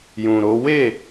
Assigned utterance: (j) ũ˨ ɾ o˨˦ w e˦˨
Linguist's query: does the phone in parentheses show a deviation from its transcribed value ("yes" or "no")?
no